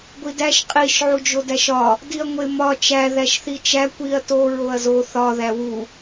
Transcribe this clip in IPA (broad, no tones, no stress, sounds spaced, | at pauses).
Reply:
ɡʷ i d æ ʃ qʼ i ʃ ʕ u d͡ʒ o d æ ʃ ɒ | d i ɐ̯ ŋʷ e m ɒ t͡ʃ æ ð æ ʃ θ i t͡ʃ æ kʷ i ɐ̯ t o ɹ o ɐ̯ z o θ ɒ ð æ w u